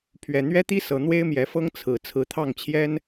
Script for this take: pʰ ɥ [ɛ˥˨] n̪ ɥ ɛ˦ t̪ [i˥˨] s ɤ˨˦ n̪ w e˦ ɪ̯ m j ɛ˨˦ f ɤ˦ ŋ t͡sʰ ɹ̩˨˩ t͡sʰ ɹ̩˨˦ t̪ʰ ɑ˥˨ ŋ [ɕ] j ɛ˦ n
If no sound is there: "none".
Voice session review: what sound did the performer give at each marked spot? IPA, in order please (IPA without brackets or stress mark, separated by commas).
ɛ˨˩, i˦, t͡ɕʰ